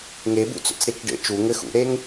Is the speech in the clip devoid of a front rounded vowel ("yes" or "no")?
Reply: yes